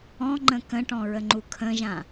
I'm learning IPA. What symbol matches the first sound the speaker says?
ɔ̃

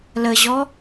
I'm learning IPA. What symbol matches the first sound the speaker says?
l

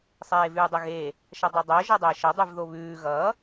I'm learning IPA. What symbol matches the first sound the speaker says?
sˤ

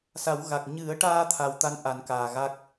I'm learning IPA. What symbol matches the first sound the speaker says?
s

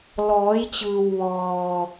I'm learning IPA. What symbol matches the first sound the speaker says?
l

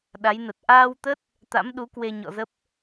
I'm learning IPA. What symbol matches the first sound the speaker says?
ɗ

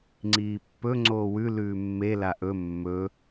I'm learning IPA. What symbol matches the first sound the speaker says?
ŋ͡ǀ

